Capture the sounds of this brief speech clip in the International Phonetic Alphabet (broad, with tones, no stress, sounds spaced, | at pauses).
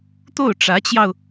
t̪ o˥˩ ʊ̯ ʈ͡ʂ ä˧˥ t͡ɕ j ɑ˧ ʊ̯